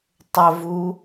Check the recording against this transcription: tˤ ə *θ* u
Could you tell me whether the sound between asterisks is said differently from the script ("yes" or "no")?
yes